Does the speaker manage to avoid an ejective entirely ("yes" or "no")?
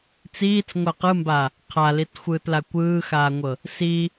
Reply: yes